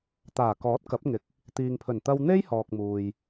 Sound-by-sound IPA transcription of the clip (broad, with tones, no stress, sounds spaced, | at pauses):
t̪ aː˨˩ k ɔː˨˥ t̚ k ɐ˨˥ p̚ ŋ ɪ˨ k̚ | t̪ iː˨ ŋ pʰ ɵ˨˩ n t̪ ɐ˧ w n̪ e˥ j h ɔː˨ k̚ m uː˨ j